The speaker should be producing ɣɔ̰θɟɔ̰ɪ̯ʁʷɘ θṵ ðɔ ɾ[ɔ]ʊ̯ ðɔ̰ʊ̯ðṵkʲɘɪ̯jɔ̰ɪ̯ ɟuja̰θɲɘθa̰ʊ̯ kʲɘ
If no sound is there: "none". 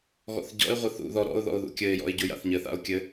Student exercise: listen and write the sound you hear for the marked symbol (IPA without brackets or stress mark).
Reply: ɔ̰